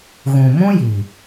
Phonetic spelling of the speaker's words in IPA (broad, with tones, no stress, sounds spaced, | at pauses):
ɣ ũ˨ m ũ˦ j i˨